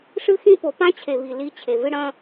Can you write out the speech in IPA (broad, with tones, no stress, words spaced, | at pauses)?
ʂɨ˦xĩ˦po˨ pã˦t͡ɕʰe˨βi˨ li˧ t͡ɕʰe˨vɨ˦ ɽɐ̃˦